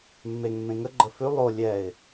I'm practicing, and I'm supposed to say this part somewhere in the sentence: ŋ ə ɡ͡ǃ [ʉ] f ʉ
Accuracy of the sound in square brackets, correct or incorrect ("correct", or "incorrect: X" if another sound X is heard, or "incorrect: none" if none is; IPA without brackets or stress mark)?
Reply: incorrect: ə